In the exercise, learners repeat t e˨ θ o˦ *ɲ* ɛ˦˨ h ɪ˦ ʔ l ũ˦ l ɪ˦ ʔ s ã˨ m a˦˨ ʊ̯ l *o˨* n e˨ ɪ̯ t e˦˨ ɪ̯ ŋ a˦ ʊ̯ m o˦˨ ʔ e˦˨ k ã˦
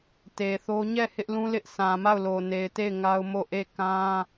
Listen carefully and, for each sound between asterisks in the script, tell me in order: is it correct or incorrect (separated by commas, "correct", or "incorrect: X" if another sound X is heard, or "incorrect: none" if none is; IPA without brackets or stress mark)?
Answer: correct, correct